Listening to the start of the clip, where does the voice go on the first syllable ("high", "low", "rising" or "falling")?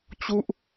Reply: falling